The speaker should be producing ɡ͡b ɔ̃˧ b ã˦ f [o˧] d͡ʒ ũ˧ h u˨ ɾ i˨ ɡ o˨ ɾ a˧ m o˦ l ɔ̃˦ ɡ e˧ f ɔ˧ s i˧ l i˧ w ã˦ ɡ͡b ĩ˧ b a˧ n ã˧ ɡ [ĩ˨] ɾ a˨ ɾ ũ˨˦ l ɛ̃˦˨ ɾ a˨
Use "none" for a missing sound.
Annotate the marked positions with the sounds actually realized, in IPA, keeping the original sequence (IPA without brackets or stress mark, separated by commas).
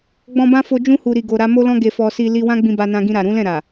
o˧, ĩ˧